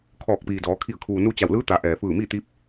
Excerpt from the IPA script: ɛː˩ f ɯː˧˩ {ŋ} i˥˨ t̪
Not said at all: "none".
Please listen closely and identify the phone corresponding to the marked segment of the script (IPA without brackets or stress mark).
m